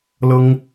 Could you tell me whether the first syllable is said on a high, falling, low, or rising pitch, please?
high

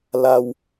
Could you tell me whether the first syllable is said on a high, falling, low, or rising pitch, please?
low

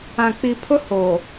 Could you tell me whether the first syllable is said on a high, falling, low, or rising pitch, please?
low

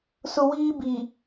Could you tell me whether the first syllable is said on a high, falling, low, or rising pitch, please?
high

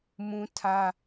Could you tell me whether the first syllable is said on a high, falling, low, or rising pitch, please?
high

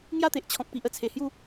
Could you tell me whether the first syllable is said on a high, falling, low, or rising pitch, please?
falling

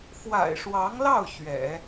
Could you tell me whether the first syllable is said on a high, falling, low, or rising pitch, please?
low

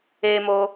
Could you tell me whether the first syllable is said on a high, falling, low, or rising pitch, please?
high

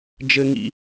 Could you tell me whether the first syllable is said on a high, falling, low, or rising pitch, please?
high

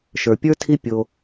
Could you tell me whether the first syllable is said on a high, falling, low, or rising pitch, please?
low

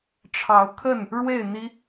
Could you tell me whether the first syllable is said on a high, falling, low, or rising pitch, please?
rising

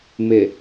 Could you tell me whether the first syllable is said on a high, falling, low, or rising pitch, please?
low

